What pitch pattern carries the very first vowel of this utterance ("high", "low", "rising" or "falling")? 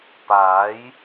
rising